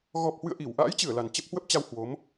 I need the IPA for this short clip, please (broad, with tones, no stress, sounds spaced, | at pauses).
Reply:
ɣ ɔ˨˩ p̚ h w ɨ̰˧˨ ə̯ ʔ i˧˩ w ʔ a̰ː˧˥ j t͡ɕ ɨ˧˩ ə̯ l a˨˩ n t͡ɕ ə˦˥ p̚ h w ə˦˥ p̚ t͡ɕ a˧ w h w o˨˦ m